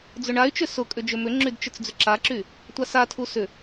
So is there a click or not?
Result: yes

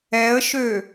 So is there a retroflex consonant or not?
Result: no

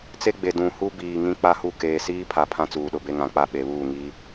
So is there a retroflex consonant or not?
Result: no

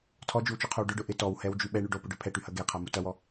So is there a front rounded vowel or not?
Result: yes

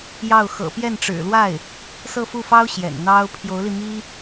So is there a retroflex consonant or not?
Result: yes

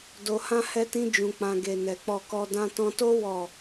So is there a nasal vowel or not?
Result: yes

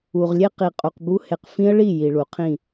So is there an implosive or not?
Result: no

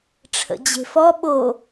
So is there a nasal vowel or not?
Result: no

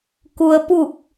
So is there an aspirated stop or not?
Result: no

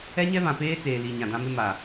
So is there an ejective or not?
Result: no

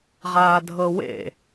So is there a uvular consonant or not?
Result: yes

